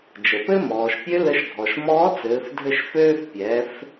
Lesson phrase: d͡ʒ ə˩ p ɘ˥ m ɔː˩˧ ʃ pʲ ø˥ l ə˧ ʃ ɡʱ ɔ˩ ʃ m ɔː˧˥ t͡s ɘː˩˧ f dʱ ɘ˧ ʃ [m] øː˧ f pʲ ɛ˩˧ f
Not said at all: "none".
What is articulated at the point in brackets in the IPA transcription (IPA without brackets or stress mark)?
f